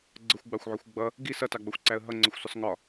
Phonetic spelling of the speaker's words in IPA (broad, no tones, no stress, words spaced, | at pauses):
ɡ͡ǀəxʷɡ͡bɑxʷʕɔxʷ ɡ͡bʌ | ɡi sʌtɑɡ͡bʌxʷǀæə̯ ɦʌŋ͡ǀəxʷsʊsˤ ŋɒ